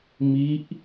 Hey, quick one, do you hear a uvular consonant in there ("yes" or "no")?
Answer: no